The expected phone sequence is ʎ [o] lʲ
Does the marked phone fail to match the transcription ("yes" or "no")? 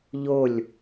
no